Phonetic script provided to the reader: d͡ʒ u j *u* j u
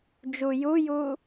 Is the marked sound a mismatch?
no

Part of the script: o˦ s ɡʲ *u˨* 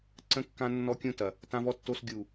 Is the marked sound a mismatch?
no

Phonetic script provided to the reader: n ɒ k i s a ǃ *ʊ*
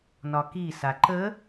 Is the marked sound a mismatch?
yes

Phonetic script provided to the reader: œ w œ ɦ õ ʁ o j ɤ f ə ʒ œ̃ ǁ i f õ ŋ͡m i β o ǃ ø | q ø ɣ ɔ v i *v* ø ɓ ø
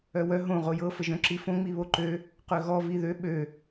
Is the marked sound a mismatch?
yes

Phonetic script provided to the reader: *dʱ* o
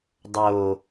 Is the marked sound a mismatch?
yes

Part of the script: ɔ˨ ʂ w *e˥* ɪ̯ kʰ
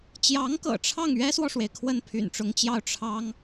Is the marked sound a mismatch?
yes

